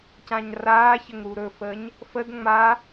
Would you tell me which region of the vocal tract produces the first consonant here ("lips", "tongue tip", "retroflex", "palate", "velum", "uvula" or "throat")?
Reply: palate